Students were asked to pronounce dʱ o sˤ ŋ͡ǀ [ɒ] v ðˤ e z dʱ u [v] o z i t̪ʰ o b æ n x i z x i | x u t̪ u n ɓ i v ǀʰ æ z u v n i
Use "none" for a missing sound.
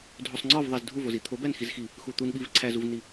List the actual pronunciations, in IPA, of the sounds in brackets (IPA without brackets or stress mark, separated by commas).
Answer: ɒ, v